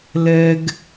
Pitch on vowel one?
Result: high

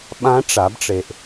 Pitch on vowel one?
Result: rising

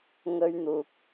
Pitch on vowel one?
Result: high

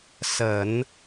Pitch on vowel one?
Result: low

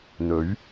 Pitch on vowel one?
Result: rising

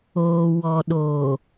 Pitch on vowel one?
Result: low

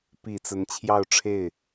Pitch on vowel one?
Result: low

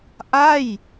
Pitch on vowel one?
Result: falling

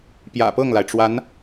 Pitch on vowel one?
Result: low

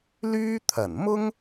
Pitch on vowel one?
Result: high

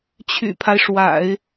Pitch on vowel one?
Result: low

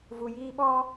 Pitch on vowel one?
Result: low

